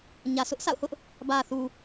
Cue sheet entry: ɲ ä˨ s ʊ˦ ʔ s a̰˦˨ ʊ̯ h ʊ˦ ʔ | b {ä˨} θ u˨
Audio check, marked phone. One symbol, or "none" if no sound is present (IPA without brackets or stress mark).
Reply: ä˨